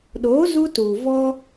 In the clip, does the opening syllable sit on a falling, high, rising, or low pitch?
rising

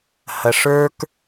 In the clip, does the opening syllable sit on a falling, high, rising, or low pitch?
low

